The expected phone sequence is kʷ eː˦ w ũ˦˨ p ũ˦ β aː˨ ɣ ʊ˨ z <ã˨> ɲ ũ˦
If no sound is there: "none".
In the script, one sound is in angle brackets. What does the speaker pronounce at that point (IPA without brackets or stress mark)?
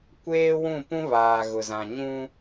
ã˨